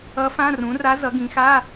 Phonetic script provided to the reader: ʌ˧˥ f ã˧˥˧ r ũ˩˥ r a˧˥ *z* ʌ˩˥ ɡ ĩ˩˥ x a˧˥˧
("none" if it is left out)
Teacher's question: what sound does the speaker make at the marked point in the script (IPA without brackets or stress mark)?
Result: z